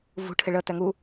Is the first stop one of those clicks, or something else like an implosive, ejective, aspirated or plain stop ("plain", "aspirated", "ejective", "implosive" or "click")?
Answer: aspirated